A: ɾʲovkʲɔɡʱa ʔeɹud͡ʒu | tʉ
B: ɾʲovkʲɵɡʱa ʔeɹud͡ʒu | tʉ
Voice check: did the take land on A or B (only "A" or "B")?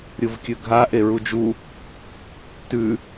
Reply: B